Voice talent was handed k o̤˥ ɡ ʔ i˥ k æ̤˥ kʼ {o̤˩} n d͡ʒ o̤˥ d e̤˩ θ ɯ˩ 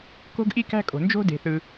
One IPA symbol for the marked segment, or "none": o̤˩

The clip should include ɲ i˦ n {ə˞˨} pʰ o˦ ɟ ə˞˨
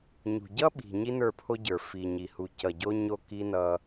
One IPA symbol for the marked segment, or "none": ə˞˦˨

